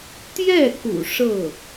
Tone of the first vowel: falling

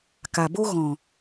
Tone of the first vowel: low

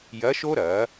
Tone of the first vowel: rising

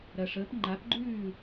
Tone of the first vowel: low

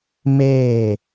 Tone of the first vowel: falling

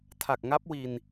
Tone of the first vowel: low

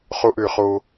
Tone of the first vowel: high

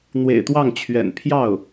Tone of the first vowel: low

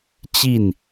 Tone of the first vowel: falling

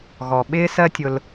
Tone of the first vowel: low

